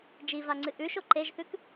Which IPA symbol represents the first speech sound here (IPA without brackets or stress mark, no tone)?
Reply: d͡ʒ